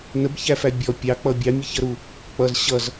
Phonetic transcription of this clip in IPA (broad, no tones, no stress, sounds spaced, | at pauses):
n ə b ç æ f æ bʲ ɔ pʲ ɑ k͡p ʌ bʲ ɑ mʲ ə ç ʌ ɾ u | k͡p ʌ z ɕ ʌ z